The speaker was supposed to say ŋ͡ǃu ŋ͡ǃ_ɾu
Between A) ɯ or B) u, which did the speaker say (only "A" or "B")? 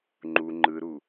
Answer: A